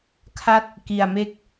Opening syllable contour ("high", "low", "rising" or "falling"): falling